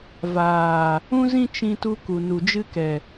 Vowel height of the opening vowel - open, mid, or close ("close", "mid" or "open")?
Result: open